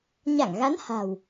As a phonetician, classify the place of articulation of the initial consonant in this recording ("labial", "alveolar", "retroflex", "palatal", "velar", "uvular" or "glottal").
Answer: palatal